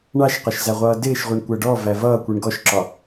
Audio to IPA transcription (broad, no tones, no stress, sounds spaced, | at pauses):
ɳ ɑ ʃ q ɒ ʃ z æ ʁʷ ʌː d ɪː ʃ ʁʷ i ɳ kʷ æ ɖ ɔ v æ v ʌː kʷ i ɳ ɡ ɔ ʃ ǁ ɒ